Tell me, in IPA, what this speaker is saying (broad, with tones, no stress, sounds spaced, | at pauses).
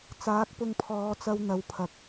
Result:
t͡s aː˨˥ k̚ p ʊ˧ ŋ pʰ ɔː˨˧ t͡s ɐ˧ w n̪ ɐ˨˧ w pʰ ɐ˨ k̚